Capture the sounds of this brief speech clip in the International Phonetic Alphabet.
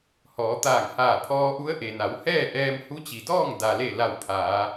h ɔː˩˧ t̪ aː˧˩ ŋ h aː˧˩ pʰ ɔː˧ ʔ u˧˥ ə̯ ʔ e˩ n a˩˧ w h ɛː˥˨ ʔ ɛː˧ m h u˧˥ t͡ɕ i˩ d ɔː˥˨ ŋ d a˩ l e˧˩ l a˧˩ w pʰ aː˩˧

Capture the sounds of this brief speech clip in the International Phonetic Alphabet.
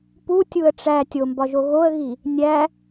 p u tʲ u ə̯ ʈ͡ʂ æ tʲ o m b ɒ ʒ o ɣ o ə̯ ɣ i | nʲ æ

